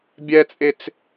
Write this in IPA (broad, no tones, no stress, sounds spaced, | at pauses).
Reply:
bʲ ɛ t͡sʼ e t͡s